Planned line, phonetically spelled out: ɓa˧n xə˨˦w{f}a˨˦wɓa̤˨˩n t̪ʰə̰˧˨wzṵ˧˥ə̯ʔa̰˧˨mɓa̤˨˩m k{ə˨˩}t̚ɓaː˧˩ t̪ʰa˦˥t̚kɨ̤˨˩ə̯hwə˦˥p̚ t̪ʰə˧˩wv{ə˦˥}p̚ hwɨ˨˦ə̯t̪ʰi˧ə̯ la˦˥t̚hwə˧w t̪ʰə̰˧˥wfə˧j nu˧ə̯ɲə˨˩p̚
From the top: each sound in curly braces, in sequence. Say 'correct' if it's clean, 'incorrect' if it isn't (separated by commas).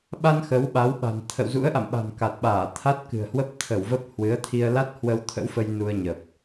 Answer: incorrect, incorrect, correct